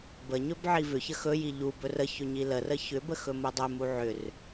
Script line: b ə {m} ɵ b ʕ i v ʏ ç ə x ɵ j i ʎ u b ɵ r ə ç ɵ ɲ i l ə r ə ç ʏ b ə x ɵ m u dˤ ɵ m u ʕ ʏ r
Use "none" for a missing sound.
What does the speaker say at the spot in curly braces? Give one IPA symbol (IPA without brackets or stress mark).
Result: ɲ